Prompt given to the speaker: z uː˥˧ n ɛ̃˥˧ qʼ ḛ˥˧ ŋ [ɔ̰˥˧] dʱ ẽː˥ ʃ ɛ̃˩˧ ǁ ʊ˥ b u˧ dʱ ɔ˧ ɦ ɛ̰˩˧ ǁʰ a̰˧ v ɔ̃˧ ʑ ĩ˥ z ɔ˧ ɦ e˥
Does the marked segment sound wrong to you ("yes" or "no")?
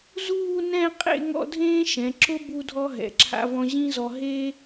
no